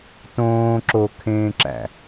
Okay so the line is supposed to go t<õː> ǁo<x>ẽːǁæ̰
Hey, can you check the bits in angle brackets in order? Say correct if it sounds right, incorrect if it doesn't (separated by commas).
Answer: correct, incorrect